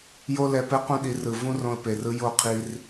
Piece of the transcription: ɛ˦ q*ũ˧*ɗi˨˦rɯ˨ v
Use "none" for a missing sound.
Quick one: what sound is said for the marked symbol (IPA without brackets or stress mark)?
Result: ũ˦